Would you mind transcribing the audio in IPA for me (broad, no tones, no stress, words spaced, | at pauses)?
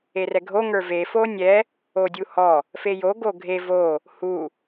erɛɡʱo ŋə˞ve fonʲɛ | odʲuhɔ | fejo ɡoɡʱe vo | hu